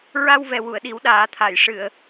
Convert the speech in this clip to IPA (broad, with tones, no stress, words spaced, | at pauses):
ɹa˧wvɛ˨˩ wu˨˩˨ə̯ɗi˨˩˦w ɗaː˨˩˦t̪ʰa˨˩˨j ʂɨ˨˩˨ə̯